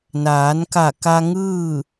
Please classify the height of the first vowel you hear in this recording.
low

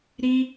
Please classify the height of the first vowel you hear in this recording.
high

